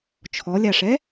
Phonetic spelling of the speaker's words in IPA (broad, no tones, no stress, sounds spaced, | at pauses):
t͡ʃʰ ɔ lʲ a ʂ ɛ